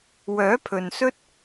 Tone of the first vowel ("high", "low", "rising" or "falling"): rising